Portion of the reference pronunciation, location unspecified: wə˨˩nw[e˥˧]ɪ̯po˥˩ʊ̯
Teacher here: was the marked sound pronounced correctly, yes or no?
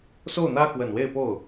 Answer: yes